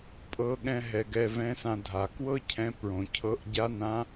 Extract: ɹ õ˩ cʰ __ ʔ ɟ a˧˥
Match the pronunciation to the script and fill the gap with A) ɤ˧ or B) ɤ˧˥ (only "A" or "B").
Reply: B